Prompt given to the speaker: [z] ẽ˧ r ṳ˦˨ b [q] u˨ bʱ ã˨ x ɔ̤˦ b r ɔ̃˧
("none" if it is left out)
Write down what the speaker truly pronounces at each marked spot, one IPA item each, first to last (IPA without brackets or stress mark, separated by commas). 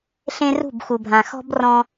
ɬ, x